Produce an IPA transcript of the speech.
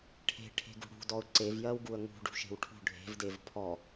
ʈʰ e̤ ʈʰ e̤ ɡ ṳ ɽ ṳ d ɔ ʊ̯ ǀ e v j ɜ w ɡ u ə̯ ŋ ṳ ɖ ṳ ʃ e̤ w ʈʰ ṳ ɖʱ e̤ v d e v pʰ ɔ

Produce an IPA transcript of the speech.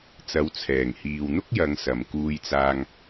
t͡s ɐ˨˥ w t͡sʰ ɛː˨˩ ŋ h iː˨ w n̪ ʊ˥ k̚ j ɐ˨˧ ŋ s ɐ˨ m k uː˧ j t͡s aː˧ ŋ

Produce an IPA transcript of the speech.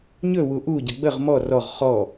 ɲ ɵ w u ʔ u ɟ ə ɡ͡b ə ʁ m ɔ r ɔ ʁ χ ɔ

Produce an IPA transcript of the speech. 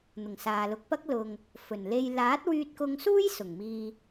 n̪ ʊ˨˩ ŋ s aː˨ l ʊ˨ k̚ p ɐ˥ k̚ l ʊ˨ ŋ | f ɵ˨˩ n l e˧ j l aː˨˥ t̚ w yː˧ t̚ k ʊ˧ ŋ s uː˥ j s ʊ˨˩ ŋ m iː˨

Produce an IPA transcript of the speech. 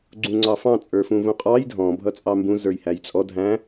ɡ͡ǀ ũ ŋ͡ǀ ɑ f ɑ̃ t͡sʼ ə˞ f ũ v ũ qʼ ɑ j dʱ ɔ̃ bʱ ʌ t͡sʼ ɑ m b ũ z ə˞ j h æ j t͡sʼ ɔ dʱ æ̃

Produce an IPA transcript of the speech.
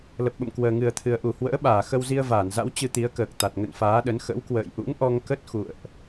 l ə˨˩ p̚ ɓ ə̰˧˨ m k w əː˨˩ ŋ ɨ˨˩ ə̯ t̪ʰ ɨ˨˩ ə̯ ʔ u˧˩ h w ə̰ː˧˥ ɓ aː˧˩ x ə˧ w z i˧ ə̯ v aː˧˩ n z a̰˧˥ w t͡ɕ ɨ˧ t̪ i˨˦ ə̯ k əː˨˩ k̚ t̪ a˨˩ t̚ ŋ ə̰˧˨ n f aː˨˦ ɗ ə˨˦ n x ə̰˧˥ w k w ə̰ː˧˨ j ʔ ṵ˧˥ ŋ ʔ ɔ˧ ŋ k ə˦˥ t̚ x ṵ˧˨ ə̯ ʔ

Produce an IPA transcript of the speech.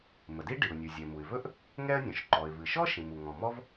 m ə˩ d i˥ ɖ i˩ ʊ̯ nʲ u˩ zʲ ɛ˩ m u˩ ɪ̯ v ɵ˥ ʔ | ŋ ɛ˥ ə̯ nʲ ɔ̃˩ ʃ ǃ ɔ˩ ɪ̯ v ɨ˩ ʃ ɔ˥ ʃ ĩ˩ m u˩ ŋ ɔ̃˩ m ɔ˥ v

